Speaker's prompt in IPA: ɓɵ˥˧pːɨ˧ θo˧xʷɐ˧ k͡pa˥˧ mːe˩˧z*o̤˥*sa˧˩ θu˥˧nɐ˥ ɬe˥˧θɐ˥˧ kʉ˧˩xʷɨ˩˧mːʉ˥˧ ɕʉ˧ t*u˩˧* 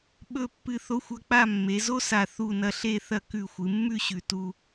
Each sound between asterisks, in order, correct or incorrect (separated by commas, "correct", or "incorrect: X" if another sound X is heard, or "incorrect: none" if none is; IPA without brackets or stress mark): incorrect: o˥, incorrect: u˥